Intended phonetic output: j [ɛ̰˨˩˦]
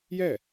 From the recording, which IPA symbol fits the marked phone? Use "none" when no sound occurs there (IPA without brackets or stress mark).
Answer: ɛ˥˩